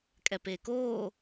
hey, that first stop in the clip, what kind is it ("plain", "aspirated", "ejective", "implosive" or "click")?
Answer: ejective